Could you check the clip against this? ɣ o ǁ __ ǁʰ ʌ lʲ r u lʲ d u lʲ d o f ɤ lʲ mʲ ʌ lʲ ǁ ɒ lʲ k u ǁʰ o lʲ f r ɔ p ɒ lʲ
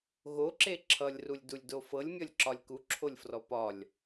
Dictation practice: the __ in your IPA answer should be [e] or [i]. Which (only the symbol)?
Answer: e